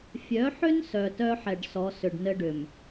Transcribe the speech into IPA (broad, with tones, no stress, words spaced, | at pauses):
fʲœ˨˦ħʏ˦n sœ˨tœ˦ħɛ˨ɖ sɔ˨˦ sʏ˨ɖnɘ˦ɖʏ˨m